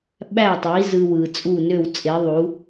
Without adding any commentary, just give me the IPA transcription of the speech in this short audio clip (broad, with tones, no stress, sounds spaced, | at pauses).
ɓ æ˥˩ tˤ i˩˥ z ɯ˧ w ɯ˩ t͡sʼ u˥˩ n ø˥˩ w t͡sʼ e˩˥ ðˤ u˩˥